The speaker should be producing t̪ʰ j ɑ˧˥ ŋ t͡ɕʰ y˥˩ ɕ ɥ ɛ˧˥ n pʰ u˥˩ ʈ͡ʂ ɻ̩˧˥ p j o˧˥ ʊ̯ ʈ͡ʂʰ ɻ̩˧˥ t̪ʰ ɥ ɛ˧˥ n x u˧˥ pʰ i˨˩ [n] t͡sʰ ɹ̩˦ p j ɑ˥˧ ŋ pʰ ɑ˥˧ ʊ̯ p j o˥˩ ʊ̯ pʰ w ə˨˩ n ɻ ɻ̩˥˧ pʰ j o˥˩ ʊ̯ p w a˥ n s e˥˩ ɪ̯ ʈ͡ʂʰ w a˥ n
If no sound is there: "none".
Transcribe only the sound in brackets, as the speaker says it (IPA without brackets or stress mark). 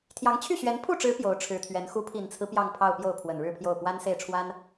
n